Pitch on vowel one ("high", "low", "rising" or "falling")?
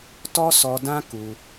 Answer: high